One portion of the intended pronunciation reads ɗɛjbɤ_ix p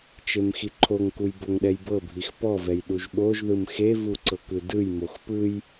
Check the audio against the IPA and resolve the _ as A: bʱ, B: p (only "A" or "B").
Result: A